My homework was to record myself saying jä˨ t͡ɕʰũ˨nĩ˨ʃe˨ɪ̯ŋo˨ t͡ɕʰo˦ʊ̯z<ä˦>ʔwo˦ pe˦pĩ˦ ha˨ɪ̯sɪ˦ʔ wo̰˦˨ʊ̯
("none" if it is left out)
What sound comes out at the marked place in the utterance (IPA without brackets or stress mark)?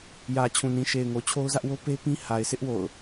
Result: ä˦